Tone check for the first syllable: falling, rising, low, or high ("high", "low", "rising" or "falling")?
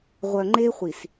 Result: low